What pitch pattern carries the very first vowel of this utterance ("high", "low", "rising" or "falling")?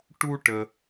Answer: high